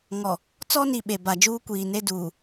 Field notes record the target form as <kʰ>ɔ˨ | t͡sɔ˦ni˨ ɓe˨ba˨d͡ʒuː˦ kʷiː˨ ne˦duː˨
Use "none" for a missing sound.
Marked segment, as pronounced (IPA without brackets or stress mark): ŋ